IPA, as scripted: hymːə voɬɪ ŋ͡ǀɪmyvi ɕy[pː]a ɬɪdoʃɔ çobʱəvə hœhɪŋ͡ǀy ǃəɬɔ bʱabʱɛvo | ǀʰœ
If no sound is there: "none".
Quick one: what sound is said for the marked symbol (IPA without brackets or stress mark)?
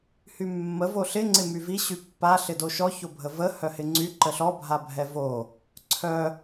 pː